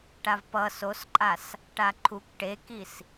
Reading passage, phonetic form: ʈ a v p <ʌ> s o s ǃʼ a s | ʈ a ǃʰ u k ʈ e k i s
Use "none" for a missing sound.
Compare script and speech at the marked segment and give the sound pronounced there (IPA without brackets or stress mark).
ʌ